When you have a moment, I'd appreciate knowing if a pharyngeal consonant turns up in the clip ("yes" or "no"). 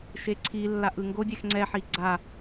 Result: yes